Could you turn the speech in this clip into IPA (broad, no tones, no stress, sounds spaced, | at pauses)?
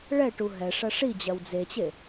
ɭ ɛ ʈ u ɦ ɛ ʂ ɐ ʂ i d͡ʑ ɐ w d͡z e t͡ɕ e